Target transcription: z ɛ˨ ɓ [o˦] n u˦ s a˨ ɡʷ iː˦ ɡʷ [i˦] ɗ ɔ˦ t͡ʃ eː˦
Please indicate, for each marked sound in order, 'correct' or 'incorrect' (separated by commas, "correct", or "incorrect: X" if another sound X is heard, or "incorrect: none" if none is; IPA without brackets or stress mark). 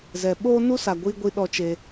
incorrect: oː˦, correct